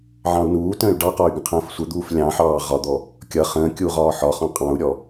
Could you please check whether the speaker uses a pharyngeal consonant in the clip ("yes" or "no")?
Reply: yes